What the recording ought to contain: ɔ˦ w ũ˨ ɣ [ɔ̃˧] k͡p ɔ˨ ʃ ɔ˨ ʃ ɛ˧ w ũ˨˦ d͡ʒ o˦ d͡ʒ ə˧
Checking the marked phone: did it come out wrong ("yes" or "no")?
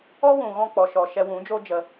no